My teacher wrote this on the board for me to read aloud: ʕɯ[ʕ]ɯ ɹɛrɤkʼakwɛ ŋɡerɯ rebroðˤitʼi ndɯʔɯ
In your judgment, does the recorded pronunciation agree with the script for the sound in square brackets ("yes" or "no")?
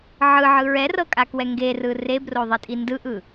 yes